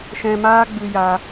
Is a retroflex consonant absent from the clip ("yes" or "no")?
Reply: yes